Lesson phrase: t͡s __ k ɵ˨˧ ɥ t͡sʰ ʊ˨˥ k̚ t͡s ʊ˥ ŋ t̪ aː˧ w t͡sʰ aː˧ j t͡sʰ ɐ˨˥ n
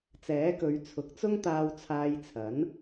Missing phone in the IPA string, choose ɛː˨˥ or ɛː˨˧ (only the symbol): ɛː˨˥